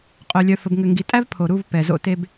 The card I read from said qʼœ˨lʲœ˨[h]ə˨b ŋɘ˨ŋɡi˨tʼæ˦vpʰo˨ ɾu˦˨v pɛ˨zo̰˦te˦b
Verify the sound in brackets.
incorrect: f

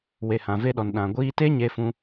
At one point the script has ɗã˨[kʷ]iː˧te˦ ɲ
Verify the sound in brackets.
incorrect: ɡʷ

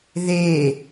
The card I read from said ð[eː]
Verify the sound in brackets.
correct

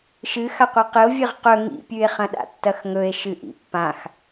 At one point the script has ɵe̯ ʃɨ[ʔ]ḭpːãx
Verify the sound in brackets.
correct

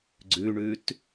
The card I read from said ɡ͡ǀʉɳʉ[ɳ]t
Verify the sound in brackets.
incorrect: none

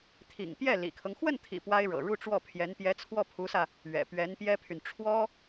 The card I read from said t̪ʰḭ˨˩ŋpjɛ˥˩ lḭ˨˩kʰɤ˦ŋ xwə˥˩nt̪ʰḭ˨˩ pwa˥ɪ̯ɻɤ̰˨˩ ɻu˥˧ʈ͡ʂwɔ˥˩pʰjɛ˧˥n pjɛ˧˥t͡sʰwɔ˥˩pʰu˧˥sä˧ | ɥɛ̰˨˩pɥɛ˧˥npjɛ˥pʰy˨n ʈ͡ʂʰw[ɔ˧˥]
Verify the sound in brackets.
incorrect: ɔ˥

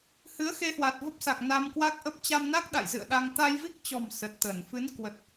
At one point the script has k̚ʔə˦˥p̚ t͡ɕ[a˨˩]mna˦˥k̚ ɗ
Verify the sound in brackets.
incorrect: a˧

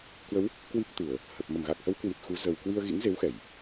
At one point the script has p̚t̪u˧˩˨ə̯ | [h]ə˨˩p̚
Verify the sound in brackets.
correct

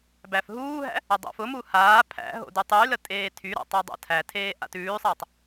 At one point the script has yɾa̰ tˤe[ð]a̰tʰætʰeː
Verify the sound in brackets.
incorrect: dˤ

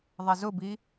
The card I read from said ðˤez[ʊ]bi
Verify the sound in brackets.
correct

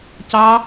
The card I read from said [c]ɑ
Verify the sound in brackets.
correct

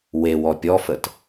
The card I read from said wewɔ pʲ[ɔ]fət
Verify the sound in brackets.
correct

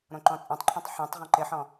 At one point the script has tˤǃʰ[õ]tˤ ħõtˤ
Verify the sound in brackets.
incorrect: ɔ̃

